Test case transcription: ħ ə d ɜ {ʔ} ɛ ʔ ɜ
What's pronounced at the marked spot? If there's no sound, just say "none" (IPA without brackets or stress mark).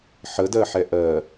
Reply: ħ